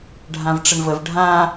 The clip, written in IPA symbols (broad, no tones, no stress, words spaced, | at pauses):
ɖʱãvʈ͡ʂəɳvəv ɖʱã